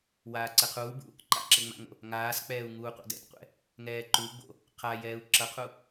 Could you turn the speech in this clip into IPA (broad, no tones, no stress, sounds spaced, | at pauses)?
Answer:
w aː ǀ ɛ qʰ uː b ṵ | ǃ a̰ ǁ ɘ ŋ͡m a̰ ŋ o̰ | ŋ aː s k͡p ɛː u̯ ŋ uː qʷ a̰ d ɛ̰ t qʷ ɛ̰ | ŋ ɛː ǃ u ɡ͡b o̰ | qʰ a j ɛː u̯ ǁ ʌ qʰ u